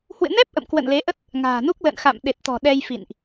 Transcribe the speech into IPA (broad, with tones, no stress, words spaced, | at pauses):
hwɨ̰˧˨nɛ˦˥p̚ ʔə̰˧˨mkwə̰˧˨nle˨˦ʔə˦˥t̚ | ŋa̤ː˨˩nu˦˥k̚ lə̰˧˨n xa̰˧˨mɗe˨˩t̚t̪ɔ̤˨˩ ɗɛ˧jfḭ˧˨nʔ